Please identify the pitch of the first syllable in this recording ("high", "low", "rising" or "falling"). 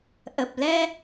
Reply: low